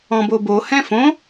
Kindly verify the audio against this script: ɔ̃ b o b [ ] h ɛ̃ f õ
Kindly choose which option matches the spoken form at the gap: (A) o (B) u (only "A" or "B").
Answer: A